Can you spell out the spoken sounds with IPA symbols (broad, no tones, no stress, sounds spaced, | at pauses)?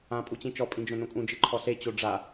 ã pʼ u t͡ɕ ĩ t͡ʃ ɔ pʼ ĩ d͡ʒ õ n õ kʼ ũ d͡ʒ ɨ ǃʰ ɔ ɬ e t͡ɕ o ɖ͡ʐ a